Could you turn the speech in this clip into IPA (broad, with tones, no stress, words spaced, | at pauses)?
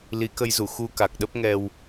li˨˦kə˧jzu˧˩ xu˧ka˨˩k̚ɗə˦˥p̚ŋɛ˧w